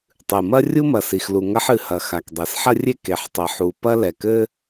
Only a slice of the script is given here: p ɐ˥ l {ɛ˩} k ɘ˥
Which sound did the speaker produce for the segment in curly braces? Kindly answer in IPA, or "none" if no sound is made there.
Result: ɛ˩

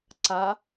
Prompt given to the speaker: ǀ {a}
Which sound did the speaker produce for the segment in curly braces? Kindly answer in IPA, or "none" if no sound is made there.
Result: a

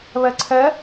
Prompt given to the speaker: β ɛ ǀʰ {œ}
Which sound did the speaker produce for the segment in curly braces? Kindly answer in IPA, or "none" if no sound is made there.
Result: ɛ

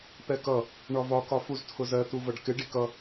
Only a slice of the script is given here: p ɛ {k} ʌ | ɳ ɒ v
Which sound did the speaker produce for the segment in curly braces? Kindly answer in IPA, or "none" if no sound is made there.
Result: k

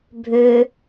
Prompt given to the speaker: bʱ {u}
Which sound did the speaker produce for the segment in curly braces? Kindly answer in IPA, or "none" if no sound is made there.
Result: ø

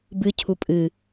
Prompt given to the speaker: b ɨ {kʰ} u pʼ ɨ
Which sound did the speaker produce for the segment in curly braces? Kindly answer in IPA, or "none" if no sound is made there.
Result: cʰ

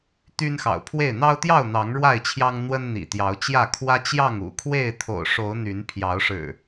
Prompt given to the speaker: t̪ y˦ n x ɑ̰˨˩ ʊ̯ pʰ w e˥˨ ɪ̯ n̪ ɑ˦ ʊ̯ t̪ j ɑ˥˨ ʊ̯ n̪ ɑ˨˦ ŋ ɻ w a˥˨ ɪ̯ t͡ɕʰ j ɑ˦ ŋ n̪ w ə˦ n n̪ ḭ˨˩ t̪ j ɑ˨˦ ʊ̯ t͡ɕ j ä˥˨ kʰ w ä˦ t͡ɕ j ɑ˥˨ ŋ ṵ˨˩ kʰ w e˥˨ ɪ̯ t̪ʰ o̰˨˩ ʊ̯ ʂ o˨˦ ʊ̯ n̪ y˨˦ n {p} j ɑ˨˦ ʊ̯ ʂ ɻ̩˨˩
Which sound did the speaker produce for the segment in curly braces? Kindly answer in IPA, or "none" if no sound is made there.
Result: pʰ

